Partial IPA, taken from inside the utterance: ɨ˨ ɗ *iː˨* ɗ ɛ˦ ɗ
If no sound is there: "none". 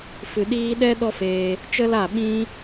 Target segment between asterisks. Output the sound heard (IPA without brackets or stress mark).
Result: iː˧